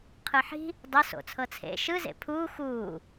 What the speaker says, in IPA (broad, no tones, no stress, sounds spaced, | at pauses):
qʰ ɯ ħ i̤ | dˤ ɤ s o̰ t͡sʰ ɤ t͡sʰ ḛ ʃ ɯ z ḛ pʰ uː x uː